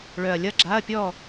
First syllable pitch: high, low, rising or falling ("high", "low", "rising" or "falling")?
low